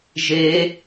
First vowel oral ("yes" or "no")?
yes